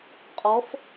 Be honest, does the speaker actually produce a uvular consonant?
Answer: yes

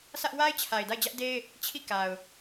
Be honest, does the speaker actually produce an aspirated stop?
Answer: yes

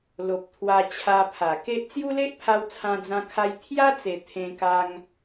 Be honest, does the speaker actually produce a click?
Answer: no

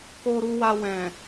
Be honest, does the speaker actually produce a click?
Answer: no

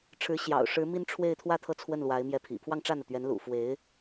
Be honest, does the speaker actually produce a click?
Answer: no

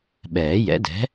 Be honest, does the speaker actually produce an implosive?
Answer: yes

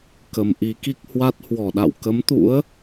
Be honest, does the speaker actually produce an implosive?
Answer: yes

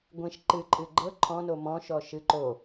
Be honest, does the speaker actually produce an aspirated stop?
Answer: yes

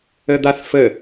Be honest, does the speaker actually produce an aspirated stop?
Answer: no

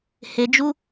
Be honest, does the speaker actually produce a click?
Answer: no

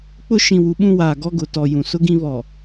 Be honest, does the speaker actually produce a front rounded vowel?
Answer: no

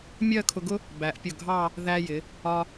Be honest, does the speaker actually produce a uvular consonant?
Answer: no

